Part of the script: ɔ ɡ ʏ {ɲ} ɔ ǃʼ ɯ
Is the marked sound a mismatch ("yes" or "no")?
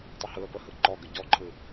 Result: yes